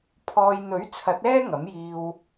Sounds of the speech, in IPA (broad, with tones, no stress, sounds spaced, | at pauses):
pʰ ɔː˧ j n̪ ɵ˨˥ ɥ t͡sʰ ɐ˨˥ t̚ ɛː˥ ŋ ɐ˨˥ m j iː˧ w